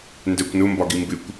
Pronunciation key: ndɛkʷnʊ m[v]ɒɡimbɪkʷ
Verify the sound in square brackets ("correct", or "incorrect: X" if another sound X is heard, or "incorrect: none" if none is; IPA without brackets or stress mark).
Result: incorrect: b